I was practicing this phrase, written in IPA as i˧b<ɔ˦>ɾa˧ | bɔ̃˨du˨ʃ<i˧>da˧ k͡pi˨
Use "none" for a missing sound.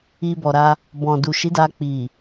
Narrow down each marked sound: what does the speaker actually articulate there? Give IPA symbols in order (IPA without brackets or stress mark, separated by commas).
ɔ˨, i˨˦